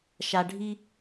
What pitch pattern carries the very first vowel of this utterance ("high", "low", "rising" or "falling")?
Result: low